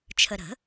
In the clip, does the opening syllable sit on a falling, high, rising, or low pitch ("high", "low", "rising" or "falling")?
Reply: low